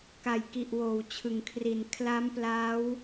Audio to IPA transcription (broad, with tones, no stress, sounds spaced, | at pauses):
k a˨˩ j k i˨˩ ʔ w oː˩˦ w t͡ɕʰ ɯ˩˦ ŋ kʰ r i˨˩ n kʰ l a˦˥ m p l aː˦˥ w